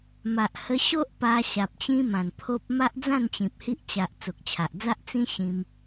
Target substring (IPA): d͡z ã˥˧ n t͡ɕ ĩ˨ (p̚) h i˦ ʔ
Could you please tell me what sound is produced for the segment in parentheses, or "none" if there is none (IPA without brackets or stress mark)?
p̚